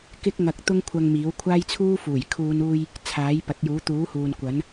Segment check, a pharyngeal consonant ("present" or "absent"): absent